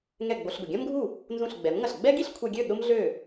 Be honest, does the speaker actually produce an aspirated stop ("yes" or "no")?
yes